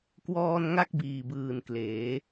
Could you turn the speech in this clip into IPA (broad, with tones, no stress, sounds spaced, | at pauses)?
k w ɔː˧ n ŋ a˥˩ k̚ b iː˨˩ b ɯː˨˩ n k l eː˩˦